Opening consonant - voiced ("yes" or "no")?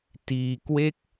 no